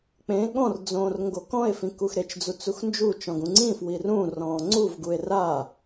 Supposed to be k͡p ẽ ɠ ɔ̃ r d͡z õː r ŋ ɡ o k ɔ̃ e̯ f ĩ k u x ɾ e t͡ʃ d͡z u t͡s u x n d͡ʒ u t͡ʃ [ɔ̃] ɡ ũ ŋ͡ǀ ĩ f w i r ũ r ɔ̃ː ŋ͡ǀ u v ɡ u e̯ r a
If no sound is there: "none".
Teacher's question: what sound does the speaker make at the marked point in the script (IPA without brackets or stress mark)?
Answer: ɔ̃